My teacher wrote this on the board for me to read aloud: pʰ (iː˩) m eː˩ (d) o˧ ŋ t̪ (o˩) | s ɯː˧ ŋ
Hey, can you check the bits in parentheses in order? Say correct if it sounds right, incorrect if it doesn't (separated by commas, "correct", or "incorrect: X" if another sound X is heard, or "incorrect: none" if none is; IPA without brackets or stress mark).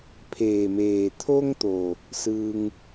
incorrect: eː˩, incorrect: t̪ʰ, correct